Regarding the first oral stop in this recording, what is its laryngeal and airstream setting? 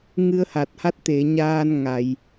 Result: plain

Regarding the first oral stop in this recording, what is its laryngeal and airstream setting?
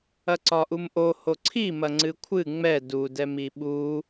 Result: click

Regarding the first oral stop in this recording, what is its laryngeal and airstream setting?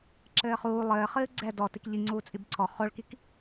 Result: click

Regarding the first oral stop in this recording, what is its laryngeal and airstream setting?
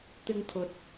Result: plain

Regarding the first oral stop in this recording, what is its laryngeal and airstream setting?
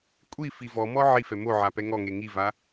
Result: ejective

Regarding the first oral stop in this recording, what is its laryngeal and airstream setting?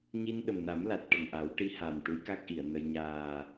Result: implosive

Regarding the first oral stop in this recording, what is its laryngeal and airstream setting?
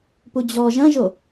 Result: plain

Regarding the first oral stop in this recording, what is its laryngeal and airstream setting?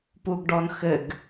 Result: plain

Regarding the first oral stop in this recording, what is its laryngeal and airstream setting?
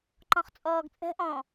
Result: click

